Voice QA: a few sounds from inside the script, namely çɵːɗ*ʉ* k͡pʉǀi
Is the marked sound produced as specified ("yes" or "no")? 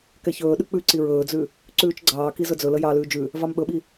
yes